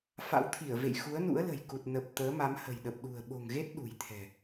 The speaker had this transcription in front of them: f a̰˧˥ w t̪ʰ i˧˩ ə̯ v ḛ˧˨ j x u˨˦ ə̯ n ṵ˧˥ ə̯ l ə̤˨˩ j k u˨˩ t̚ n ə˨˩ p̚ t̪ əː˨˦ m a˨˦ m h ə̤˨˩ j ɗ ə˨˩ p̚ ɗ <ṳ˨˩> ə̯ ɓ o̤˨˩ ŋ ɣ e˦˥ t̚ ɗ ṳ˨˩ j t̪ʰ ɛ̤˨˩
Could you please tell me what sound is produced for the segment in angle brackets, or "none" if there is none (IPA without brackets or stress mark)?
ṳ˨˩